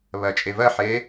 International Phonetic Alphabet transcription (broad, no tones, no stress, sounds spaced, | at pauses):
β ɜ t͡ʃʼ e v ɜ ħ e